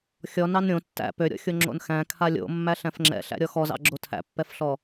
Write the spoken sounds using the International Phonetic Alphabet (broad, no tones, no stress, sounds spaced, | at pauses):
xʲ ɔ n ɑ n ɾʲ õ tː æ̰ p ø ɾʲ ɔ̰ xʲ o ŋ͡ǁ o̰ n x æ̃ kʰ a lʲ o̰ mː æ ɬ æ̃ f ŋ͡ǁ ɛ̰ ɬ æ̰ ɾʲ ɔ x ɔ z ɑ̰ ɡ͡ǁ o tʰ æ̰ pː ɛ f ɬ ɔ